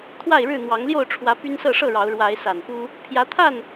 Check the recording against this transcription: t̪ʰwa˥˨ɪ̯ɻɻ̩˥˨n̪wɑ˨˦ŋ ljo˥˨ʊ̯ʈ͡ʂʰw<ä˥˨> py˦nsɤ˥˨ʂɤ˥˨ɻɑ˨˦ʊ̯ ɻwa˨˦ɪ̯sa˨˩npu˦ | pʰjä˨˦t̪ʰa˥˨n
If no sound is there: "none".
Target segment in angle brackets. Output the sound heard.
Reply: ä˨˦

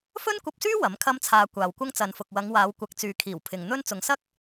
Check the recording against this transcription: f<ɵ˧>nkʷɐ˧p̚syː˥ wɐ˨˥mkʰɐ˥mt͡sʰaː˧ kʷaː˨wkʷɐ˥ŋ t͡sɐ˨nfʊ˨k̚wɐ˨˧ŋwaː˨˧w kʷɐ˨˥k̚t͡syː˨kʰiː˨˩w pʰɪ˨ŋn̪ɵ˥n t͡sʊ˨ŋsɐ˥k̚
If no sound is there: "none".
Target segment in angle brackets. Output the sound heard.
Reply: ɵ˥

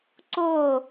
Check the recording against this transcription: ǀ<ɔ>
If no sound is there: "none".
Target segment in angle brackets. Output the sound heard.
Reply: o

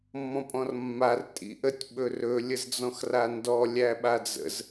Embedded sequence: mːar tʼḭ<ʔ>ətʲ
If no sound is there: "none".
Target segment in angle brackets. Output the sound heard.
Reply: ʔ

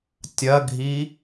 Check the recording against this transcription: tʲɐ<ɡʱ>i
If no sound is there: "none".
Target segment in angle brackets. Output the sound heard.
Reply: ɡʱ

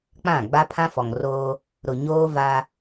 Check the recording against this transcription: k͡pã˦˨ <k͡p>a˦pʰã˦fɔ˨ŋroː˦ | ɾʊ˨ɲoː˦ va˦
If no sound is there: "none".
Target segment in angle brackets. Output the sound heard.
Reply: ɡ͡b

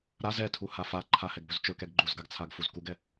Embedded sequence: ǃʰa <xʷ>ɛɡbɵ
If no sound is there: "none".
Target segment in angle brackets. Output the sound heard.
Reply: h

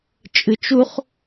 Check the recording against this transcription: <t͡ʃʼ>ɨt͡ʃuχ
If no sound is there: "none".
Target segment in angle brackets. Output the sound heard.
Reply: t͡ʃʼ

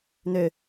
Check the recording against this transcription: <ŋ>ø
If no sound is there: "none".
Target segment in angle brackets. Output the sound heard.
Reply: n̪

